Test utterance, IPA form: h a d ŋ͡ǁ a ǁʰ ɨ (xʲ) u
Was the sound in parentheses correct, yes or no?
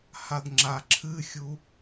yes